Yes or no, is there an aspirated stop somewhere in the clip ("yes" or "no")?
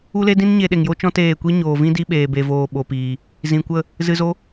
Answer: no